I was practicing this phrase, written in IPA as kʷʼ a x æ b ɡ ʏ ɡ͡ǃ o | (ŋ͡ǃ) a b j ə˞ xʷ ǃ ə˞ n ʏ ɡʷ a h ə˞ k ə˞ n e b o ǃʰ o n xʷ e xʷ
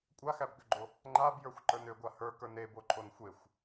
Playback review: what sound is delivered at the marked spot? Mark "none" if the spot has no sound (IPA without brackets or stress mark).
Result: ŋ͡ǃ